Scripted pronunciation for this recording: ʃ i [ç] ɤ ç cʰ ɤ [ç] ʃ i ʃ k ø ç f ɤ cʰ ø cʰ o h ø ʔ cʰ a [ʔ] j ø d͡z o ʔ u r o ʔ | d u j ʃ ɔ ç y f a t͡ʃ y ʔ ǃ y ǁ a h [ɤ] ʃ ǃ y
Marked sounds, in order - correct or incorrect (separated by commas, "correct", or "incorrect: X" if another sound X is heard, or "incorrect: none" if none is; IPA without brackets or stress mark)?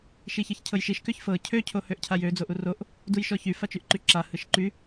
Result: correct, incorrect: j, incorrect: none, incorrect: ɯ